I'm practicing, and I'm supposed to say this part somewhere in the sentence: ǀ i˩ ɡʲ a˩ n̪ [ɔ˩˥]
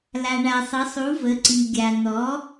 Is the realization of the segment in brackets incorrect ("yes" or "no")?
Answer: no